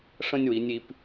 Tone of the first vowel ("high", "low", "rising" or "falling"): high